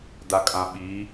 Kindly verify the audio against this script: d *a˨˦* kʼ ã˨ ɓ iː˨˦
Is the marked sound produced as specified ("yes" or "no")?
no